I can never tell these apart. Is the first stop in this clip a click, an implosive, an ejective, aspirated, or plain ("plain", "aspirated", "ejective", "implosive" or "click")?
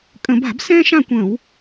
ejective